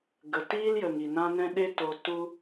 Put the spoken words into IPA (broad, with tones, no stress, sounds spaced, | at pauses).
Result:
ɡ ə˨ t iː˦ l j ə˨ ŋ i˨ n ã˦ n ɛ̃˦ ɗ e˦ t o˧ t u˦